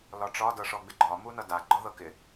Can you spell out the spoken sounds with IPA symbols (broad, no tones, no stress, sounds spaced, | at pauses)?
l ɒ ʈ͡ʂ ɒ d ɤ ʂ ɔ ɡ͡b ɪ ɡ͡ǃ ɒ m u n ʌ d a ɡ͡ǃ ɒ ð ɤ k ɪ